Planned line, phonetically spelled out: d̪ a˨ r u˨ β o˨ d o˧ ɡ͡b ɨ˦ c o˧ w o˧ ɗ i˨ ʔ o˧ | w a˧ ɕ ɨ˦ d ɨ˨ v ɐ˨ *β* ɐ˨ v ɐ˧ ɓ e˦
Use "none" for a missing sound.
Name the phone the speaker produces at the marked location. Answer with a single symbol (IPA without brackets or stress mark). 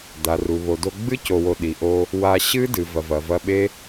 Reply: v